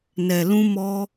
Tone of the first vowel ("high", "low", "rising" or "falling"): low